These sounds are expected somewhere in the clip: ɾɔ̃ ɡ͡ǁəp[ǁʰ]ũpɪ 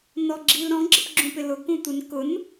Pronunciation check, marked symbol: incorrect: ɡ͡ǁ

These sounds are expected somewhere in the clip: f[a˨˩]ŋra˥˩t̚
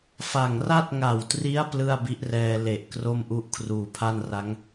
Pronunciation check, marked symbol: correct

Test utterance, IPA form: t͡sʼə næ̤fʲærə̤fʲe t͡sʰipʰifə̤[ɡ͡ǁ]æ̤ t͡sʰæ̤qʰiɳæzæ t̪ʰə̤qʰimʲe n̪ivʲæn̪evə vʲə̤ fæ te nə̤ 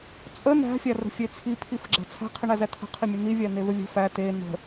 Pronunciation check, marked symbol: correct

